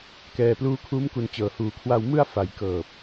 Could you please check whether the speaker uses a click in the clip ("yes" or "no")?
no